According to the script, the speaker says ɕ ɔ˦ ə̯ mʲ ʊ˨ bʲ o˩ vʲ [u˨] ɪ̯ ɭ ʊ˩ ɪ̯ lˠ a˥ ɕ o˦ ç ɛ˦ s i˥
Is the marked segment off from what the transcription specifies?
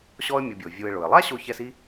no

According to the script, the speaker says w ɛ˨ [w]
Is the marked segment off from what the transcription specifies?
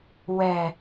yes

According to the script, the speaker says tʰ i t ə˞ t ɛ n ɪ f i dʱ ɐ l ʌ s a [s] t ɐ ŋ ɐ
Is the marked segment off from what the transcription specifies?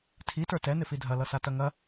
yes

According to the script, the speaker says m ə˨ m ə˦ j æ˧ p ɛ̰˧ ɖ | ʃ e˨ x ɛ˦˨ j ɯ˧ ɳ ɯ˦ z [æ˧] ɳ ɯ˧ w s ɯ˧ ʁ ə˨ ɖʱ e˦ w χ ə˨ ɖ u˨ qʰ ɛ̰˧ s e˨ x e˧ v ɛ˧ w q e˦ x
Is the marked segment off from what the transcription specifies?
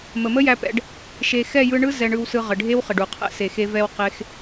yes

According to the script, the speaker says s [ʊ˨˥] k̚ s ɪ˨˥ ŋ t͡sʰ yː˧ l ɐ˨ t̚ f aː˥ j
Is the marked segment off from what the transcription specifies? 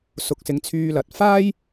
yes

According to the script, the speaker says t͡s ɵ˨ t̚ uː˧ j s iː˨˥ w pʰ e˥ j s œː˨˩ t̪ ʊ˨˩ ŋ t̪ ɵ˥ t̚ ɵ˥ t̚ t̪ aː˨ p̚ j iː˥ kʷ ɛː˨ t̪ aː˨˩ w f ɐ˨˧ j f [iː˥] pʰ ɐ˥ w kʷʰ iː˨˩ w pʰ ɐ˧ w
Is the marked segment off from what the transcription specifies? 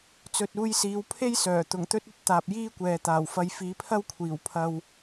yes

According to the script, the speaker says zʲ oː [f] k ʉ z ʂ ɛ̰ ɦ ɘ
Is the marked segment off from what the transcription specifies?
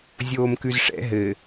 yes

